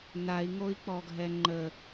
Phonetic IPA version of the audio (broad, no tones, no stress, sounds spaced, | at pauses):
n a i̯ ŋ o i̯ k͡p ɔ ɡʱ ɛ ŋ͡ǃ ə